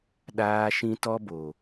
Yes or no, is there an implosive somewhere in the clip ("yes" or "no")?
yes